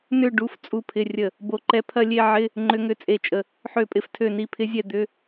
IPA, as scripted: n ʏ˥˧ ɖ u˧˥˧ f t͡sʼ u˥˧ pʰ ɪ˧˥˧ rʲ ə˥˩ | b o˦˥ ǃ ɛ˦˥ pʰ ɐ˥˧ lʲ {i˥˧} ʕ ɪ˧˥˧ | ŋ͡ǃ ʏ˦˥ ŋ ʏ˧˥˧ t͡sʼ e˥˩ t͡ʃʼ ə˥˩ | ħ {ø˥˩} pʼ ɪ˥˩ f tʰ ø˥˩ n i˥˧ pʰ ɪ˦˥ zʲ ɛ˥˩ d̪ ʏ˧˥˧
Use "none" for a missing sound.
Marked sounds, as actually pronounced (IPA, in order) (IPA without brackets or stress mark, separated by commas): e˥˧, ø˥˩